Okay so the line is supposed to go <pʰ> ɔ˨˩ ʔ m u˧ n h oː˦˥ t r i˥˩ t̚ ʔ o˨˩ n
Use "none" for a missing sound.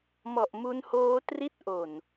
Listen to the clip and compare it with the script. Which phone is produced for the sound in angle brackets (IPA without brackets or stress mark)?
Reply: m